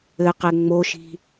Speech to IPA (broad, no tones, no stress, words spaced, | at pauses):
ɘqɛ ŋ͡moʃi̤